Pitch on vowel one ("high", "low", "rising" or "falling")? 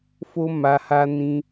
high